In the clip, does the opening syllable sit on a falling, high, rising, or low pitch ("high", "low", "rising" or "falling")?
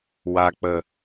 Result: low